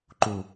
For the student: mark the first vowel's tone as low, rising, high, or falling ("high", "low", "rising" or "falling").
low